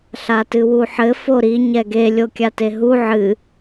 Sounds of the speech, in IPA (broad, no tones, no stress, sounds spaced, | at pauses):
ɬ a t ɨ w u ħ ɘ f o ɾ i ɲ ɛ ɡ e lʲ o kʲ a t e ɦ u ʕ ɨ